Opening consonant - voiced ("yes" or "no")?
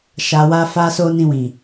no